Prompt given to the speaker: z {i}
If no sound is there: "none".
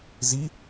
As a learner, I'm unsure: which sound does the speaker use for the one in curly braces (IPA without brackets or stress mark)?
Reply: i